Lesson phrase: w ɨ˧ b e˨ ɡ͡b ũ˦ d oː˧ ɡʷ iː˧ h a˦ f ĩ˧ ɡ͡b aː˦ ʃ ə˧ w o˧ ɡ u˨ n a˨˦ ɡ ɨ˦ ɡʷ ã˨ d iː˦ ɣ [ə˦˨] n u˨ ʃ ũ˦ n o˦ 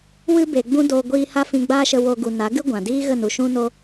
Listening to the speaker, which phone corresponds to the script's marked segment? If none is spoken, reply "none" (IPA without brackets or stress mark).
ə˦˨